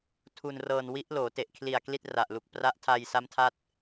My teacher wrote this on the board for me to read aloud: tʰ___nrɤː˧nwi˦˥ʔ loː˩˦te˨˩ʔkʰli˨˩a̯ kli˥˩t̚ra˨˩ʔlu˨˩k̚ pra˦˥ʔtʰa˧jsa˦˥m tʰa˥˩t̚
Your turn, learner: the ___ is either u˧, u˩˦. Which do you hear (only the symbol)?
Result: u˧